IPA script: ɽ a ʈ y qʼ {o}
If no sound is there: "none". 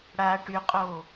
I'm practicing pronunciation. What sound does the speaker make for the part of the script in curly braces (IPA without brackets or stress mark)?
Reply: o